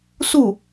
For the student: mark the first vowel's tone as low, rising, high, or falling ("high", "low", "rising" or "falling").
falling